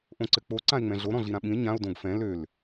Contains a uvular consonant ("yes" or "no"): no